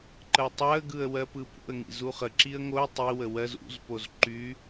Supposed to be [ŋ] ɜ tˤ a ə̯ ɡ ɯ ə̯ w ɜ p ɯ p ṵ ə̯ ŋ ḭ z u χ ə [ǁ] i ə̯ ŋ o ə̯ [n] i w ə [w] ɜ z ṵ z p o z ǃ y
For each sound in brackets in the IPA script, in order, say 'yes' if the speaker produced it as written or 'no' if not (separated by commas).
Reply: no, yes, no, yes